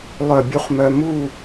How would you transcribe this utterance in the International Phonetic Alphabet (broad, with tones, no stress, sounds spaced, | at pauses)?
lˠ œ˧˩ bʲ u˧ χ m œ˧ m u˥˧